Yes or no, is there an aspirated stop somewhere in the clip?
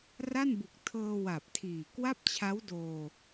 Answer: yes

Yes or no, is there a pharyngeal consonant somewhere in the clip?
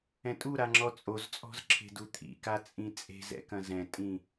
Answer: no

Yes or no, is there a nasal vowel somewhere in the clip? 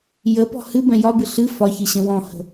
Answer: yes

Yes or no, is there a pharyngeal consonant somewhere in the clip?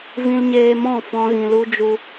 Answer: no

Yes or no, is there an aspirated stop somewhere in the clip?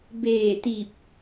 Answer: no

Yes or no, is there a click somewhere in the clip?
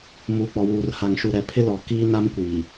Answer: no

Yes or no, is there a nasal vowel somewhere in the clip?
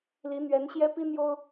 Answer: no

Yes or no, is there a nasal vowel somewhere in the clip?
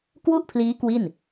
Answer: no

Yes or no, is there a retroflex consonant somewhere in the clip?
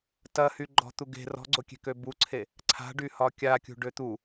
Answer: yes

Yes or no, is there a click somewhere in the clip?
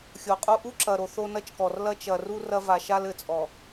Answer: yes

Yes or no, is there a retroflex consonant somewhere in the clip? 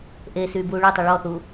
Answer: yes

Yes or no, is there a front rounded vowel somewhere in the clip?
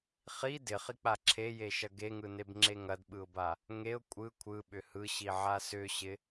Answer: yes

